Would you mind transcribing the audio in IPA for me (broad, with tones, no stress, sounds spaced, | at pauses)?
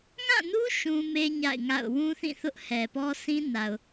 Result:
ŋ ã˦˨ n u˦ ʃ ũ˦ m e˦ ɲ a̰˦˨ ɪ̯ ŋ a̰˦˨ ʊ̯ w ũ˦ θ ĩ˦˨ θ ʊ˦ ʔ h ɛ˨ p ɔ˦ sʰ ĩ˦ n a˨ ʊ̯